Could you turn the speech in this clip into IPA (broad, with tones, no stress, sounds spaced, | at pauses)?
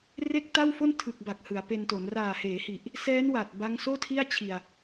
r e˥˩ k̚ t a˥˩ w f o˥˩ n tʰ ɯ˨˩ k̚ b a˨˩ k̚ h ɯ˩˦ a̯ p e˧ n t o˩˦ n r aː˨˩ h eː˩˦ h i˨˩ ʔ | s ɛː˦˥ n w a˨˩ t̚ b a˦˥ ŋ s oː˥˩ tʰ i˥˩ a̯ t͡ɕʰ i˧ a̯